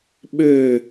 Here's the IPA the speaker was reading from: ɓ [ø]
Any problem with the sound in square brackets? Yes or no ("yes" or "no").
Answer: no